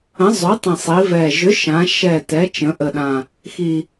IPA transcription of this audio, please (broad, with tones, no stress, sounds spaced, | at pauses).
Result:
ə̃˨˥ zˤ ø˨˥ tˤ ĩ˨˩ sˤ i˩˧ v ɛ˨˩ ʒ ʏ˨˥ ʃ ã˩˧ ʃ ɛ˨˩ t ɛ˩˧ t͡ʃ ə̃˩˧ ʔ ə˨˩ ɗ ã˨˩ | x i˨˩